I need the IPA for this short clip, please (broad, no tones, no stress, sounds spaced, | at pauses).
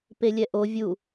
p e lʲ ɛ ʔ o vʲ u